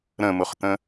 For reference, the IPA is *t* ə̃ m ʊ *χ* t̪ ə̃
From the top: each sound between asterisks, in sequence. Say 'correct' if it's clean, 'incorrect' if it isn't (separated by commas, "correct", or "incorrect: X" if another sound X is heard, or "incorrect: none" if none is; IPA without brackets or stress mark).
incorrect: ɾ, correct